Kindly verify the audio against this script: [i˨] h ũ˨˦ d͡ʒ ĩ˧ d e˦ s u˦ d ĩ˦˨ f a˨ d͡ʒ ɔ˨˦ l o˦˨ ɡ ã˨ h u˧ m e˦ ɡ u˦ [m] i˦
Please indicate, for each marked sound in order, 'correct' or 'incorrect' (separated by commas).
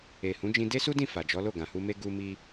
incorrect, correct